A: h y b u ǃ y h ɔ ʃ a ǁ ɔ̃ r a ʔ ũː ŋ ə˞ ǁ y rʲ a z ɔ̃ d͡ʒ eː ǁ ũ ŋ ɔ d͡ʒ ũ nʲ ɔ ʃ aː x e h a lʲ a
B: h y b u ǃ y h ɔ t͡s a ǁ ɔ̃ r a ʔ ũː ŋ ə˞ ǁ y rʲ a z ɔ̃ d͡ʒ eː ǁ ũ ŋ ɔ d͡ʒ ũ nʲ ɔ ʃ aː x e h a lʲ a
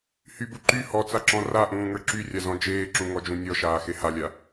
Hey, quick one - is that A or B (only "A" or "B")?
B